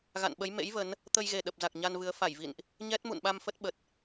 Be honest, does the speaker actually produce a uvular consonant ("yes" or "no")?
no